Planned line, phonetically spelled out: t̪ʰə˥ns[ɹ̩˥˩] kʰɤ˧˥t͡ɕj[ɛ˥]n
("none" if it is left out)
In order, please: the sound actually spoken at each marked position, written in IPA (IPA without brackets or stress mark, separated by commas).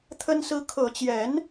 ɹ̩˥, ɛ˧˥